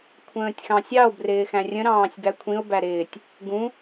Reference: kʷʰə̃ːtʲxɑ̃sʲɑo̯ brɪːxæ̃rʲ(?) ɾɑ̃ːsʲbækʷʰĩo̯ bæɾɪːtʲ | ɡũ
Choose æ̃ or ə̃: ə̃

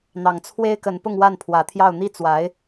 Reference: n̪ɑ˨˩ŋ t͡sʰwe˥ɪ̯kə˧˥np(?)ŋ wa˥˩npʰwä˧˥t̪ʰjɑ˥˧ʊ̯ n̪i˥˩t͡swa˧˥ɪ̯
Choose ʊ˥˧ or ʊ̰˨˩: ʊ˥˧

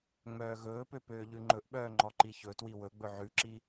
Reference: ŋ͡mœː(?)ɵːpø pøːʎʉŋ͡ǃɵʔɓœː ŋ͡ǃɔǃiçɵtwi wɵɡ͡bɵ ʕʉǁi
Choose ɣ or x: ɣ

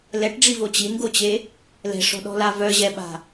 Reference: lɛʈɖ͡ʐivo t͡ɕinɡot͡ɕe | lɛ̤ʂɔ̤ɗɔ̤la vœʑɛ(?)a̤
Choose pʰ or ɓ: ɓ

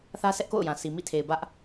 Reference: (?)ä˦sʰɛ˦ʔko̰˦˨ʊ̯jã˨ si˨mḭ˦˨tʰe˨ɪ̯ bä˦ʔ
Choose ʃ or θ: θ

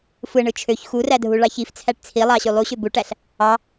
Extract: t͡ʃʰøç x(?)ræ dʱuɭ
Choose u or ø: u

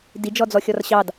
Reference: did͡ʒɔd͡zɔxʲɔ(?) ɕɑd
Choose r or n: r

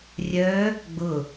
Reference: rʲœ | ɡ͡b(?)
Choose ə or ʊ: ʊ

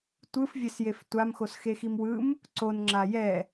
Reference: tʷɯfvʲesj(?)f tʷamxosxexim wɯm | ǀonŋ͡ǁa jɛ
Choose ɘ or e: e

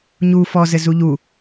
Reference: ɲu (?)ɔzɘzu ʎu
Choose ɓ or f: f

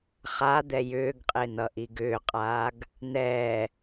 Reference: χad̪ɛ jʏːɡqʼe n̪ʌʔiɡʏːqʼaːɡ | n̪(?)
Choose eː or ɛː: ɛː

